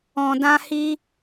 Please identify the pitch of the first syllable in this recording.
low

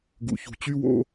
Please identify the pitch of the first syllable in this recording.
low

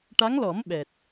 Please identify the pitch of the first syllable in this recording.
rising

